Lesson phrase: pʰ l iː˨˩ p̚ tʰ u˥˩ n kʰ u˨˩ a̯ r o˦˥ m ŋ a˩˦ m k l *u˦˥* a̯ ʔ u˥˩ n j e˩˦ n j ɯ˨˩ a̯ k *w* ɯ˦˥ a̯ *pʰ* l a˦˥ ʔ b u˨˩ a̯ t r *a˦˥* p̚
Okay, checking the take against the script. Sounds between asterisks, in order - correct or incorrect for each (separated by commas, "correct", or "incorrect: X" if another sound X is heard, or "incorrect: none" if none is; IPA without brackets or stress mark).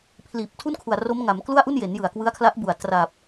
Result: incorrect: u˥˩, correct, incorrect: kʰ, incorrect: a˨˩